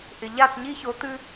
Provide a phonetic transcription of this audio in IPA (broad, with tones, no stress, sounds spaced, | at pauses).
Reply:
ʔ ɪ˨ ʎ a˦˨ t ɲ i˦ ç o˨˦ t̪ ɨ˦